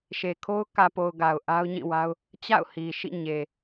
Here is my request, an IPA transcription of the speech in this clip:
ʃe˨kʰo˦ʊ̯ kä˨po˨ʊ̯ ɡa˨ʊ̯ʔa˦ʊ̯ɲĩ˦˨wa˦ʊ̯ | t͡ɕa̰˦˨ʊ̯hi˨ʃḭ˦˨ ɲe˨

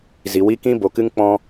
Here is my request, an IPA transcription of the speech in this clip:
zi˨wi˦ kĩ˦bo˨kɨ˦ŋ k͡pɔ̃˦

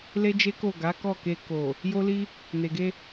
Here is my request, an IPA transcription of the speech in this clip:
le˦d͡ʒe˦ko˦˨ ɡa˨˦kɔ˦˨ke˧ ko˨ | jo˦li˦ | ne˨ɡe˧

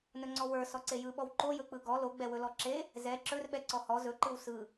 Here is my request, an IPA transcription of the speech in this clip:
nɵŋ͡ǀɔwə˞ sɔǀejɯɓɔw ǃojɵk͡pɯ ɡɔ loɡ͡bɛwɵ lɔǁe | zɛ ǁɵrɓɛ ǀɔhɔ zɵǃɯw sɯ

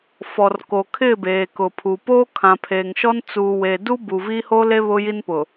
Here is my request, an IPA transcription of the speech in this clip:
fɔ˨rko˨ kʰɪ˦˨beː˨kʊ˨pʰu˨ poː˦kʰã˨pʰeː˨ŋʃɔ˦n t͡suː˨weː˨du˦ bu˨vi˦ ho˦le˦ βʊ˦ji˦npʊ˨

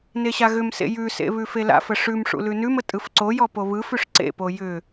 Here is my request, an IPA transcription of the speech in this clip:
neɕaɣʏmsḛ jʉsḛ βʉfela̰fə ʂʉmʂṵ lʉnʉmə tʼɯfǀojɔ poβɯfʉʂ ǀḛpo jʏ

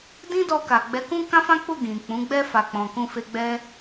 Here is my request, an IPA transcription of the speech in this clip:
dĩ˦dɔ˧ka˨ɡ͡bɛ˨˦ kũ˦kã˦fã˦k͡pu˦˨ ɡĩ˨ k͡pũ˨˦ɡ͡bɛ˦ fa˧ k͡pɔ̃˧ kũ˦fe˦ ɡ͡bɛ˦

